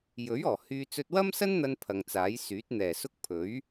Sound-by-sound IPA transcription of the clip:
j ɵ˨˥ ɥ ɔː˨˩ h yː˧ t͡s ɵ˧ t̚ w ɐ˥ m s ɐ˥ n n̪ ɐ˧ n pʰ ɐ˨ ŋ t͡s aː˨˥ j s yː˨˥ t̚ n̪ ɛː˨˩ s ʊ˥ k̚ pʰ ɵ˨˥ ɥ

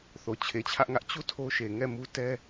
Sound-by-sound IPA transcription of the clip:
θ o˨ t͡ɕʰ e˨ t͡ɕʰ ä˦ ʔ ŋ ä˦ ʔ t͡ɕ u˦˨ tʰ o˦ ʃ e˨ ŋ ɛ˦˨ m u˦ t ɛ˦

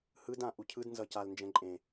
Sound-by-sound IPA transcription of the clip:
h ɯ d ã ʔ u cʰ ɯ d n z ʌ c a l n d͡ʒ ɛ̃ ǃʼ ẽ

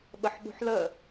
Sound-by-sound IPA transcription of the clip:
ɓ ə ħ ɓ ṳ ħ l ə

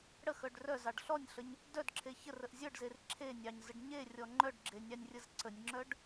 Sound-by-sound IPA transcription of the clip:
ɽ ə x œ ɖ r œ z ɑ ɖ ɬ ɔ nʲ ɬ ə ɲ | d œ d ǁʰ e ç ə r ə ʔ zʲ œ ɖ z e r ǁʰ e nʲ ɑ ɲ z ə ɖ ɲ e rʲ ɔ ŋ͡ǃ œ ɖ ɡ͡ǁ e nʲ ɑ nʲ rʲ ə z ǀ ə nʲ ŋ͡ǁ œ ɖ

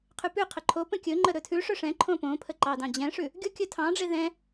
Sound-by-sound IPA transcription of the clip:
qʰ ʉ p ʉ qʰ ə ǃʰ o p ə̃ kʲ ɵ ŋ͡ǃ ə ɾ ɵ tʰ ʉ ʂ ɵ ʂ ɛ̃ ǃʰ õ p õ pʰ ə ǃ ɑ d ɑ̃ d͡ʑ ɛ̃ ʂ ʉ | ɡʲ o kʲ ɵ tʰ ɑ̃ ɖ͡ʐ e ð ɛ̃

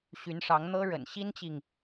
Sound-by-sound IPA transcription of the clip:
ɕ y˧˥ n ʂ ɑ˧˥ ŋ n̪ ɤ˥ ɻ ə̰˨˩ n ɕ i˥ n t͡ɕ i˨ ŋ

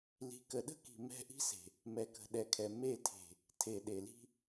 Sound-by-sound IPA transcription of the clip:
l i̤˨ k ə˨ ɗ ə̤˦ k i̤˨ m ɛ̤˦˨ ʔ i̤˦ s e̤˨ | m ɛ˨ k ə̤˨ ɗ ɛ˨ kʰ ɛ˨ m e˦˨ tʰ e̤˨ | tʰ e˨ ɗ e˨ l i̤˦

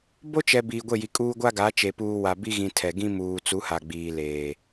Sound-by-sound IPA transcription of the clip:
b o˦ t͡ʃ ɛ˨ b iː˨ ɡʷ e˦˨ j i˨ kʼ uː˦ ɡʷ a˦ ɡ a˨˦ t͡ʃ e˨ p uː˨ w a˨ b i˦ ɣ ĩ˨ tʰ ɛ˨ ɡ ĩ˦ m uː˨ t͡s u˨˦ h a˨ ɡ͡b iː˨ l eː˨

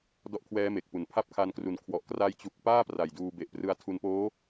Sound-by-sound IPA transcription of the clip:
d ɔ˦˥ ʔ kʰ w ɛː˦˥ m e˨˩ k̚ p u˨˩ n pʰ a˦˥ p̚ kʰ a˧ n k r u˨˩ n kʰ w ɔ˨˩ ʔ k r a˦˥ j t͡ɕ u˨˩ k̚ p aː˥˩ p r a˨˩ j d uː˧ b e˨˩ ʔ p r ɯ˧ a̯ tʰ u˧ n p oː˦˥

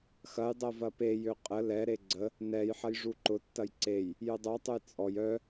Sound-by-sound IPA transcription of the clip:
x ɐ j dˤ ɛ v ɐ p e j ø qʼ ə l ɛ ɾ e ɡ͡ǀ ə | n ɛ j ħ ɐ j ʐ u ǃ ʊ tː ɐ j ǀ e j | j ø dˤ œ tˤ ø j t͡sʼ ɔ j œ

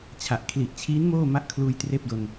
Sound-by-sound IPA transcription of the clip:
t͡ɕʰ a˨˩ ʔ kʰ l i˨˩ ʔ t͡ɕʰ iː˦˥ n m oː˥˩ m a˦˥ ʔ kʰ l uː˧ j t r eː˥˩ p̚ d o˧ n

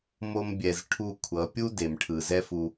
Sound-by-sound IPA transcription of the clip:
m o˧ m bʲ ɛ˨ z ʈʰ u˦˨ kʷʰ ʌ˨˦ pʲ u˦ d e˨ m ʈʰ ɯ˨ z ɛ˦ f u˧

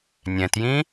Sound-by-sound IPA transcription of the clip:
nʲ ɛ̃ t j ĩ

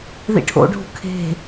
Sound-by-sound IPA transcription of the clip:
ð ḭ ʈʰ o̰ ɖʱ ṳ kʰ e̤

